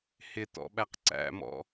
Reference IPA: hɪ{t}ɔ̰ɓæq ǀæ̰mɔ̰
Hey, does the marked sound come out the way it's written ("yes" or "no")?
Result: yes